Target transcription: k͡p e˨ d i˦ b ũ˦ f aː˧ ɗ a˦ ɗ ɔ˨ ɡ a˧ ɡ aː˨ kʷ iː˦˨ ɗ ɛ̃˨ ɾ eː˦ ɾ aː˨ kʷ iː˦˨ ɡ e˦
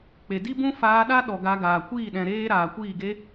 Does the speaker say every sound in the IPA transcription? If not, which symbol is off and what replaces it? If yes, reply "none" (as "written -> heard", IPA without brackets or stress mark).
none